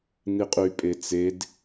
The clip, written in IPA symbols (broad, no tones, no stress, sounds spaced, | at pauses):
n i qʼ y pʼ e t͡s e d